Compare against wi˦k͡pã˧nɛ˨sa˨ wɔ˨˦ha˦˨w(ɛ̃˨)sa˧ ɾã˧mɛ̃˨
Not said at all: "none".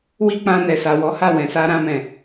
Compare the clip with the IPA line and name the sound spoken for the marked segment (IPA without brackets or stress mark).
ɛ̃˨